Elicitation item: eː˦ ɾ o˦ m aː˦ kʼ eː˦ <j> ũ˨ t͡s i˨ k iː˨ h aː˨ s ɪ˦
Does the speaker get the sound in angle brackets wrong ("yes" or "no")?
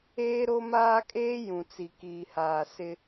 no